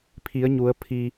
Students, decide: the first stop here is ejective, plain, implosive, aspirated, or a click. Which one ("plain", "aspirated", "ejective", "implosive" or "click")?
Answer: aspirated